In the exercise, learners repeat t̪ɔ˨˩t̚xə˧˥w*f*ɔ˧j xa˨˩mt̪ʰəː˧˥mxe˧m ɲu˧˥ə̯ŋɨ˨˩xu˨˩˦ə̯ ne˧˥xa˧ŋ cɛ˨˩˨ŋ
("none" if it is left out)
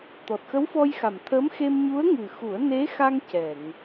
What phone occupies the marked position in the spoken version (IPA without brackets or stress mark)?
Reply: f